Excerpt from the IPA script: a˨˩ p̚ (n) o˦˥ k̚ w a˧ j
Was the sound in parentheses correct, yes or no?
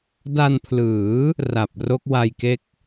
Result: no